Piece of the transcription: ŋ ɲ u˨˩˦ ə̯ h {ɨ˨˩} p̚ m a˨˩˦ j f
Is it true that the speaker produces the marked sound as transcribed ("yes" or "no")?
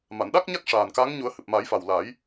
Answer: yes